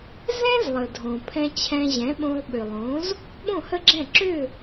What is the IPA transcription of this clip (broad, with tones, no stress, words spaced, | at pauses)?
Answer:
zɛ̃˥z lˠə˩dʱõ˩ pʰɛ̃˧t͡ɕʰɛ̃˧ʑɛ̃˩˥ɓõ˧lˠ ɓʏ˩lˠõ˩˥z | ɓõ˥˩hə˥ɡ͡ǁɛ̃˥˩ ǁʏ˥˩